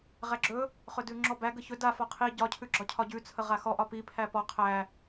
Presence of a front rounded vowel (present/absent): absent